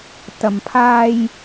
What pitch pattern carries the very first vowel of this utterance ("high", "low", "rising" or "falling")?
low